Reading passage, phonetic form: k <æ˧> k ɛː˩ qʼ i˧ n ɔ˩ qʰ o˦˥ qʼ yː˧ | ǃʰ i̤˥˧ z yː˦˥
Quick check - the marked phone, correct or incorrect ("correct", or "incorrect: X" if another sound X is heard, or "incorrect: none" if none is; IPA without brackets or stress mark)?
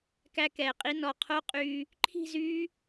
correct